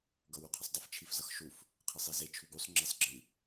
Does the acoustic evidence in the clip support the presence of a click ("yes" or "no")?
yes